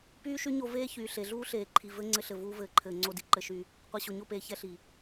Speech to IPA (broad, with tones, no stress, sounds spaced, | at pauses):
p yː˦ ʃ y˦ ɲ o˧ v eː˦ ç yː˨ ɬ e˨ ɮ uː˦ ɬ eː˨ ǃʰ i˨ v ɘ˧ ŋ͡ǀ ɘ˧ ɬ ɘ˨ v uː˧ v ɘː˨ ǃʰ ɘː˨ ŋ͡ǀ o˧ d i˨ ǃ ɘ˧ ʃ y˧ | qʷ i˨ ɕ o˨ ɲ o˦˨ p eː˨ ç ɛ˦ ɬ i˨